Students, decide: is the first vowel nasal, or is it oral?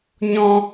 nasal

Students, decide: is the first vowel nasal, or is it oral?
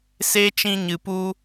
oral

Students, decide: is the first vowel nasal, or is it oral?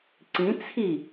nasal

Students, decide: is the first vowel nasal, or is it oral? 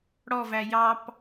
oral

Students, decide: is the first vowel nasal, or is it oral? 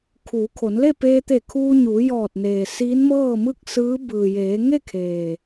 oral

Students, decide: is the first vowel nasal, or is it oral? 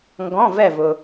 nasal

